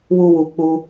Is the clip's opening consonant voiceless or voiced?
voiced